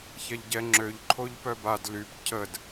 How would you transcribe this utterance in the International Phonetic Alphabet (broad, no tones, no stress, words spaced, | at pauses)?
çɛʎɟɛ ŋ͡ǁøʎǃʰoʎ pœbad lyp cʰəd